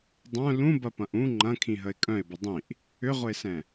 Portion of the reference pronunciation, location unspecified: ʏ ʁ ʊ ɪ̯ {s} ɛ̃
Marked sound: correct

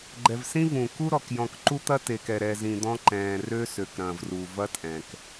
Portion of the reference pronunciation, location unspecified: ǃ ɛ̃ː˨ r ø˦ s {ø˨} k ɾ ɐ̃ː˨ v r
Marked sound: correct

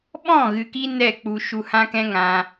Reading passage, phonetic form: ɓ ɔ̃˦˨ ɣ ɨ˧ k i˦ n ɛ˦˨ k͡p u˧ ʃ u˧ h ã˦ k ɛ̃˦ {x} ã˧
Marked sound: incorrect: ŋ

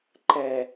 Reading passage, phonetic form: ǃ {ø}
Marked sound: incorrect: ɛ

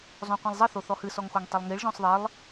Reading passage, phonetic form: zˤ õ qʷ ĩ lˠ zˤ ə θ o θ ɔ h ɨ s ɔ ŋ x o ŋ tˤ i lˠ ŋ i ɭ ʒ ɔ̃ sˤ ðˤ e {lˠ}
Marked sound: correct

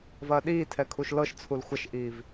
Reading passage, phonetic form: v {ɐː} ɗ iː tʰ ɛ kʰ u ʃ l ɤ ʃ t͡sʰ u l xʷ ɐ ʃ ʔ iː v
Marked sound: correct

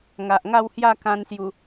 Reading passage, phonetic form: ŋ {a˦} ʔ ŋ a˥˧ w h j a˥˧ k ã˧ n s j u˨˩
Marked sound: incorrect: a˨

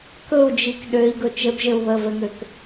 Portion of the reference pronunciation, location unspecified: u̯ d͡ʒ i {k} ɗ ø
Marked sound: correct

